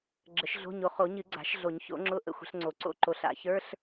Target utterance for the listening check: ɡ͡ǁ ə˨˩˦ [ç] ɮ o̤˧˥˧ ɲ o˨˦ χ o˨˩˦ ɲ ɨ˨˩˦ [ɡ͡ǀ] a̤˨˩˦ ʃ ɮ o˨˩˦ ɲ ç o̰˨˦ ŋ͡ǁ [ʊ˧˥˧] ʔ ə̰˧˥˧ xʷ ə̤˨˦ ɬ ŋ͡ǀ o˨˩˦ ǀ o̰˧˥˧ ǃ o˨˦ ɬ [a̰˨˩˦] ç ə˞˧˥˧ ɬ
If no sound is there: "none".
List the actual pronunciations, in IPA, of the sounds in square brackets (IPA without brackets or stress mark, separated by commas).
ʃ, ɡ͡ǀ, ʊ˧˥˧, a̰˨˩˦